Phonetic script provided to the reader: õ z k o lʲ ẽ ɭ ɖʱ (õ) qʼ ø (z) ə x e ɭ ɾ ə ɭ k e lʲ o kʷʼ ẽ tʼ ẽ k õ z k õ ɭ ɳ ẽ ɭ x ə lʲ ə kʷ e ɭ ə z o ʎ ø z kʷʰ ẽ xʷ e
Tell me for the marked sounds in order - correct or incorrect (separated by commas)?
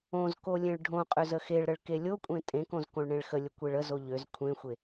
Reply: correct, correct